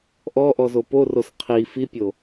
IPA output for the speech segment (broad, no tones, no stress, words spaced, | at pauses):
ʔɔʔɔzo poros qʰi fipʲo